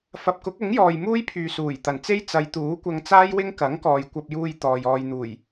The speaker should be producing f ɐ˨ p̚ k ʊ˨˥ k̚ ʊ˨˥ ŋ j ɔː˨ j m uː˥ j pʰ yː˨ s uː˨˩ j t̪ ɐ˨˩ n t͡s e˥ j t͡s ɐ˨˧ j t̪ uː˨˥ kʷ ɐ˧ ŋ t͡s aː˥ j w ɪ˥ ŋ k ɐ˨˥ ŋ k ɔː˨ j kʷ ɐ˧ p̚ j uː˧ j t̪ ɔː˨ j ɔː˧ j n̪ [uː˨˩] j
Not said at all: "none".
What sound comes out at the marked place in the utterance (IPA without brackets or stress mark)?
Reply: uː˨˩